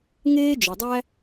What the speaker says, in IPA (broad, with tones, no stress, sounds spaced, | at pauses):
ŋ eː˥ d͡ʒ ʊ˩ dˤ æ˥